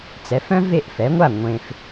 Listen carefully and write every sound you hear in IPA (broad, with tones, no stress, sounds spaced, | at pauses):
t͡s ɛ˩˥ f œ̃˦ v e˥˨ ʔ f ɛ˩˥ ŋʷ a˥˨ ŋʷ ẽ˨ f